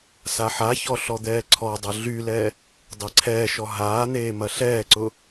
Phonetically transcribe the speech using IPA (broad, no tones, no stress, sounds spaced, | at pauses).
s a ħ a ç ɔ ɬ ɔ d̪ ɛː ǀʰ ɔ dˤ ɐ ɮ y l ɛ | dˤ e ǀʰ ɛː ʃ ɔ ɦ aː n̪ eː m ɐ ɬ ɛː ǀ ʊ